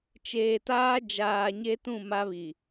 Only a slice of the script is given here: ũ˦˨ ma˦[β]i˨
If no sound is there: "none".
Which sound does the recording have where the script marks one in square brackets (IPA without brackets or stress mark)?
β